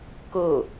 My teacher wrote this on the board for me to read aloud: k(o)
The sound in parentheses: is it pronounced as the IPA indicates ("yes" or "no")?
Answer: yes